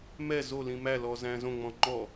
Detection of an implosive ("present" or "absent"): absent